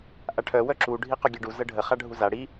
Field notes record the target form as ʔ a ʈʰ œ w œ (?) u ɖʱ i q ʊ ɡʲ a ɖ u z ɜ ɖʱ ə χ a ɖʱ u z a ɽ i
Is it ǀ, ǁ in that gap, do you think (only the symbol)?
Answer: ǁ